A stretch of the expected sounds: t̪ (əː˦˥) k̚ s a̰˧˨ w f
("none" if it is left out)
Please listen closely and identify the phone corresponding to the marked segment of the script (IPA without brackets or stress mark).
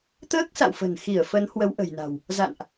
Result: əː˦˥